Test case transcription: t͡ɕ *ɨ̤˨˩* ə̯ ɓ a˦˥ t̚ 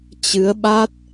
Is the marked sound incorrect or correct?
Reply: incorrect